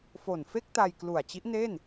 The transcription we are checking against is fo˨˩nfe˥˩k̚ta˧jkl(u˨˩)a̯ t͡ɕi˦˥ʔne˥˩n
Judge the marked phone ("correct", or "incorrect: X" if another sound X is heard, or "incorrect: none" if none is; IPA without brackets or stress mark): correct